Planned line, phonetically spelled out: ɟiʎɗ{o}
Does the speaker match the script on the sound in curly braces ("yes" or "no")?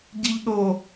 yes